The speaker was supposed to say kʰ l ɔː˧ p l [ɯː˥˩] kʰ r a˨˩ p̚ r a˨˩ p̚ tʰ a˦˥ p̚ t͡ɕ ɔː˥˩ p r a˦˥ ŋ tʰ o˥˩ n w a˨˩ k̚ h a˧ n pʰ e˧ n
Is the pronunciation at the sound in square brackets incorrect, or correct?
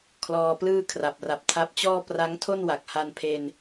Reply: correct